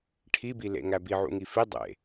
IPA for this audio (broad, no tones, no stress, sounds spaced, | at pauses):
ʈʰ i b i l ḛ ŋ æ b i ʕ ṵ ŋ i f i dˤ ḛ